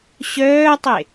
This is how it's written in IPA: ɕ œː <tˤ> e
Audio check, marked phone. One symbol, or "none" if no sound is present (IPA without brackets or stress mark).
tˤ